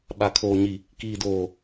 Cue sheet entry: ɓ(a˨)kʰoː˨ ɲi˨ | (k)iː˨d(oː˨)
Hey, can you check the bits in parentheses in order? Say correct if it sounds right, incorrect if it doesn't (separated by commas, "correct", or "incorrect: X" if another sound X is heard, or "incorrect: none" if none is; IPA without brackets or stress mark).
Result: correct, correct, correct